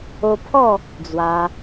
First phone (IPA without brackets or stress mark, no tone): o